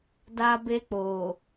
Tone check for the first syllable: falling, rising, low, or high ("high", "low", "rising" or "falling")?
high